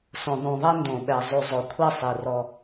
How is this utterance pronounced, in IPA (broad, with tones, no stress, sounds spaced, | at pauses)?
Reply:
s õ˨ ðˤ ũ˨ ðˤ ɛ˦ n d õ˨ ɓ ɛ˨ zˤ y˨ zˤ o˨ kʷʰ ɛ˦˨ sˤ i˨ r ɔ˦